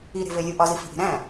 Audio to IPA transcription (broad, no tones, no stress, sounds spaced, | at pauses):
i ɾ e̤ v e lʲ u ʔ ɒ z i f i̤ ʔ i̤ ɾ æ̃